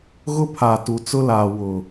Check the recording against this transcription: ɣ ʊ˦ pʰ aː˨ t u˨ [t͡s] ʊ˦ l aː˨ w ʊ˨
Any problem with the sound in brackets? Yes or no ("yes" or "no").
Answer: no